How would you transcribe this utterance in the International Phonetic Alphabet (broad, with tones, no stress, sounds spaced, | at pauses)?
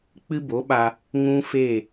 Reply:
k͡p ɨ˦ b o˨˦ ɓ a˧ | ŋ ũ˦ f e˦˨